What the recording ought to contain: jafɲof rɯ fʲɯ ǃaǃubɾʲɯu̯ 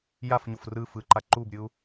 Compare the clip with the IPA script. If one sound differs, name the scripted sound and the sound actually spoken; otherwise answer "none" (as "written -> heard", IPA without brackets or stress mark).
fʲ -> f